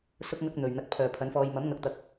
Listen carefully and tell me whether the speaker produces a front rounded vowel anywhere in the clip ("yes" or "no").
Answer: yes